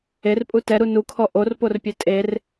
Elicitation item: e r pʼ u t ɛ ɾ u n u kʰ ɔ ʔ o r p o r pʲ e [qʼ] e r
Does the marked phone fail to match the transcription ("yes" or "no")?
yes